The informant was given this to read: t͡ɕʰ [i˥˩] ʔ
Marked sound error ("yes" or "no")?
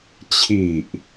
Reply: yes